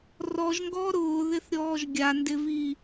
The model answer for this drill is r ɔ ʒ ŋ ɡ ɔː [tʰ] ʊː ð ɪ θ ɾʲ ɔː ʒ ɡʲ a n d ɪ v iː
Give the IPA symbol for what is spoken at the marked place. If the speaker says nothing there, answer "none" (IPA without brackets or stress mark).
ɾ